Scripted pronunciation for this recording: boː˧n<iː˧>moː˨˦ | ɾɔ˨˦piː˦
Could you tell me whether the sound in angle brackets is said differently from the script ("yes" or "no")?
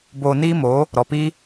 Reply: yes